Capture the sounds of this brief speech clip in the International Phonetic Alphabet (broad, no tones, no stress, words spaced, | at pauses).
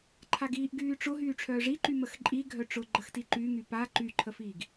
ǃʰaɡiːʔɡyːʈ͡ʂʊ ɦyːʈ͡ʂʰœːʐiǃy məxǃʼi ɡʱœʈ͡ʂʊ ɡ͡ǃəxtiǃyŋy pa ǃyǃʰəfiːɡ